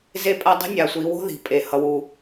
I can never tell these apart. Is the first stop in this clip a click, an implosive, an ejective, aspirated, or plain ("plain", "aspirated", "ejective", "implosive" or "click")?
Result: ejective